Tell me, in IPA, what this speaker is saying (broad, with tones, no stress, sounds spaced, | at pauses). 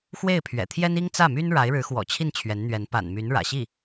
x w e˥˩ ɪ̯ pʰ ɥ ɛ̰˨˩ t̪ʰ j ɛ˥ n i˥ ŋ t͡s ä˥˩ m y˥ n ɻ a˧˥ ɪ̯ ɻ ɻ̩˧˥ x w ɔ̰˨˩ t͡ɕʰ i˥˩ n t͡ɕʰ ɥ ɛ˧˥ n n̪ ɥ ɛ˧˥ n p a̰˨˩ n m y˧˥ n ɻ ä̰˨˩ ɕ i˥˩